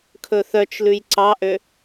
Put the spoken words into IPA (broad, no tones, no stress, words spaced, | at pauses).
kʰɵθœt͡ʃlʉj ǀɑʔø